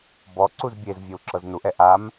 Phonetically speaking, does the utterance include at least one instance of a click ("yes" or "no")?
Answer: yes